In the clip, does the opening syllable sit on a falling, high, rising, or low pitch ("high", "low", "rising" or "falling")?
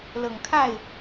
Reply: low